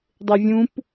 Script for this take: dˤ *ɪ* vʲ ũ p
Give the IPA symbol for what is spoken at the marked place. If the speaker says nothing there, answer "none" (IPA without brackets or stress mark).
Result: ɪ